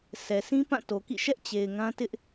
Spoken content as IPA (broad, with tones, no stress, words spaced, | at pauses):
sɛ˨ sʰĩ˦pã˦˨to˨kḭ˦˨ ʃɛ˦ʔ t͡ɕe˨ɪ̯ŋã˦tɪ˦ʔ